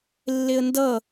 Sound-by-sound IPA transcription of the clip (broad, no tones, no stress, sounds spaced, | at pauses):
lː e ə̯ n d ʌ